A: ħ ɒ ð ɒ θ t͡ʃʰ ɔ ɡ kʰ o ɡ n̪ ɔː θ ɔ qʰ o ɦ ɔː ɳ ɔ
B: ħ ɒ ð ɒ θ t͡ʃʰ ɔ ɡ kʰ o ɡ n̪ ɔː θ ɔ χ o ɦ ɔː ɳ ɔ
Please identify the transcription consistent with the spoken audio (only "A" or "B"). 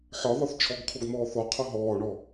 A